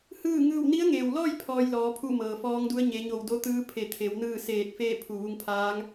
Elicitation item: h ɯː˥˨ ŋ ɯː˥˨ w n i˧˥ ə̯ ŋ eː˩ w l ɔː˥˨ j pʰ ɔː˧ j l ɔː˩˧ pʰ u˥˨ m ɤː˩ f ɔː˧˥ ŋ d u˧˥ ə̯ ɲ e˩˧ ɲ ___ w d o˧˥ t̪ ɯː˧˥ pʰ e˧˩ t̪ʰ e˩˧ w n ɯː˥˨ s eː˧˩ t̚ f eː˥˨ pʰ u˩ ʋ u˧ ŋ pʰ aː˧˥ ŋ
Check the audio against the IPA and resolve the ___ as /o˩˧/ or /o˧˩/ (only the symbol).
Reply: o˧˩